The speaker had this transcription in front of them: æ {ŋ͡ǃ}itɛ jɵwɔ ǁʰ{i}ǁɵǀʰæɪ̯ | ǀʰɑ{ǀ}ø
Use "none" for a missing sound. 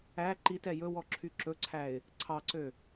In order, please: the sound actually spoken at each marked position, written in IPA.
ǃ, y, ǀ

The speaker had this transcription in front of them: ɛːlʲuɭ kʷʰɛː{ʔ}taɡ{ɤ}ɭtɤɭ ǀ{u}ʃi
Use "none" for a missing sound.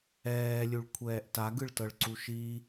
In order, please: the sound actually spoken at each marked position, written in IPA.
ʔ, ɯ, u

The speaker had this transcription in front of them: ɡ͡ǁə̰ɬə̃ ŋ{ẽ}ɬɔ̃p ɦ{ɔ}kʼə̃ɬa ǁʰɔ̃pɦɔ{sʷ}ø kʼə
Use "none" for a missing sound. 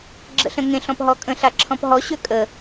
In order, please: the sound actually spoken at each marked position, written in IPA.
ẽ, ɔ, ɕ

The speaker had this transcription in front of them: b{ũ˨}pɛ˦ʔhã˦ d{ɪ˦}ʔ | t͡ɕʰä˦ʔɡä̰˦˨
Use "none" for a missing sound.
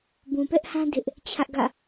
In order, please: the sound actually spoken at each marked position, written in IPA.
ũ˨, ɪ˦

